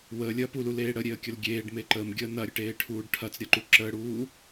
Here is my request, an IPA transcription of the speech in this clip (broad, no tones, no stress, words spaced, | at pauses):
wəːlʲɐː pululeː ɽəɾʲeə̯kʲəl ɡʲeːɖme ǃəːmɡʲəː nɐɾʲəʈeːʈʰuːɖ ʈʰɐt͡sɾʲɐǃu ǁəːɽuː